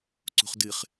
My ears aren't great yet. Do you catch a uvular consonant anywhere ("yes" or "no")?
yes